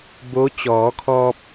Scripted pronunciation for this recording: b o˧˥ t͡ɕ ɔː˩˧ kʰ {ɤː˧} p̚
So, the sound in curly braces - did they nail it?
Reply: no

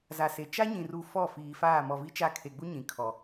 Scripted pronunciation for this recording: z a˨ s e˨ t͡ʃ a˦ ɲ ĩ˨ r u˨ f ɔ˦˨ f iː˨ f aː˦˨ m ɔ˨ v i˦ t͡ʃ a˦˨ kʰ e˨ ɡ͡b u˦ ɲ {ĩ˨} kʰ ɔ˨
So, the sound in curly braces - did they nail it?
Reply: yes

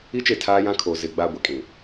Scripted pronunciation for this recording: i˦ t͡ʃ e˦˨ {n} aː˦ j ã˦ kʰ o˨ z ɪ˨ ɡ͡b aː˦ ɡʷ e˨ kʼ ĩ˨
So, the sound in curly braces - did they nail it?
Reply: no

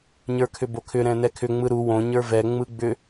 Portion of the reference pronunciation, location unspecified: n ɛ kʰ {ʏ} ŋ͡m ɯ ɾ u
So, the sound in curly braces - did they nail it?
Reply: yes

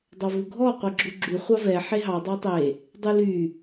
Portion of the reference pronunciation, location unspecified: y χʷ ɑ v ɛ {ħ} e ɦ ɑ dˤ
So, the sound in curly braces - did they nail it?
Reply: yes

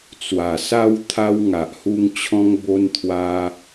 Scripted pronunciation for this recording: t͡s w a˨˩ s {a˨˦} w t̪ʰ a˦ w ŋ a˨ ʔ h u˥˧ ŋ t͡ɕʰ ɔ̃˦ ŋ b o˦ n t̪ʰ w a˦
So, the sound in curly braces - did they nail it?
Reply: no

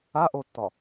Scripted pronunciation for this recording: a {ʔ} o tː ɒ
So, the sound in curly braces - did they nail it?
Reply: yes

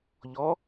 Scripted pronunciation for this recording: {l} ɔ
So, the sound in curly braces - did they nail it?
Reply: no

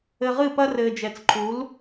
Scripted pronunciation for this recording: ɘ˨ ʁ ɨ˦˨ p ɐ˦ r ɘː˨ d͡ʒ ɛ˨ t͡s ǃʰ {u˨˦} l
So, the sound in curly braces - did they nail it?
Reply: yes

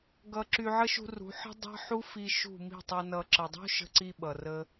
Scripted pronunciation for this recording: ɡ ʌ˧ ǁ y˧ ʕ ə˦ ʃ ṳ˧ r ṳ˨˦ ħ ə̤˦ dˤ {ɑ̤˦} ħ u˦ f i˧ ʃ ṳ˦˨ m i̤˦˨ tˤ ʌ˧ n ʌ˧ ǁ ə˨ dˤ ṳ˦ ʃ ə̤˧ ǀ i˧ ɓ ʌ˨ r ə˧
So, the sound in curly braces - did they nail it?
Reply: yes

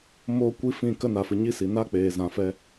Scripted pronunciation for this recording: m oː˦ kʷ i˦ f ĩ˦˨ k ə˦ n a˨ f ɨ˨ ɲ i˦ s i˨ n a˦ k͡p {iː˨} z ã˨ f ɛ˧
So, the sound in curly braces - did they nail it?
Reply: no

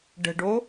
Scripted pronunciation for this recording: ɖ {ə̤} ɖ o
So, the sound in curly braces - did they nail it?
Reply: yes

